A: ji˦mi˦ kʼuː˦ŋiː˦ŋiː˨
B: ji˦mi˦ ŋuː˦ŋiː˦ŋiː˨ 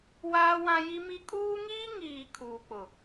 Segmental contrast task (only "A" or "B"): A